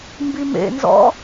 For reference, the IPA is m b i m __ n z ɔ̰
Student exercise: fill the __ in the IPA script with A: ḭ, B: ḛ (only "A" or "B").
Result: B